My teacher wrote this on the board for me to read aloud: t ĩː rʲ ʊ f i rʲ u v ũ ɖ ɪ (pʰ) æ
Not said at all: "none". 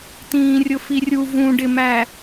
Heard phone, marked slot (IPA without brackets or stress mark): m